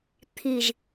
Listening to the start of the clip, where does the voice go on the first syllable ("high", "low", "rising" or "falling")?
low